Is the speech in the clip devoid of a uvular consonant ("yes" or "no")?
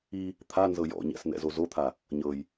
yes